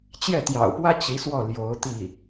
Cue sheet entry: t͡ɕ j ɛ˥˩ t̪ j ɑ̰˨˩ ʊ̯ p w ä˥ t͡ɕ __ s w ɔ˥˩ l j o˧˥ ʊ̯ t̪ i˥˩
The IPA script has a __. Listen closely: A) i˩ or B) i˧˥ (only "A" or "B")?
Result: B